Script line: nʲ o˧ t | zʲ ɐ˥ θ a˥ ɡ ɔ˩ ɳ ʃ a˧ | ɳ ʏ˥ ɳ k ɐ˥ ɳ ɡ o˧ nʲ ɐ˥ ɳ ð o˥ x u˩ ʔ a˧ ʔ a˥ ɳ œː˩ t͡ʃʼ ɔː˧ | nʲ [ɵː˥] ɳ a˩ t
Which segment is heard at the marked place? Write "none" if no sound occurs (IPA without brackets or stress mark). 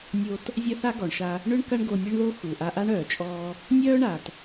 œː˥